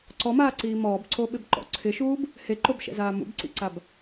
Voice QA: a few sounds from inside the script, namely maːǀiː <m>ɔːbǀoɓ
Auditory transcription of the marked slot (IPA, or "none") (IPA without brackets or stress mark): m